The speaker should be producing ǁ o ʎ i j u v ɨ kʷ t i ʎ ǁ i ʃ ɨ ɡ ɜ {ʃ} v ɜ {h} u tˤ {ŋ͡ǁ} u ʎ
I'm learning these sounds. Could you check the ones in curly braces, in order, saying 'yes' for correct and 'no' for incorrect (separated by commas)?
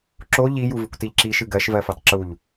yes, no, no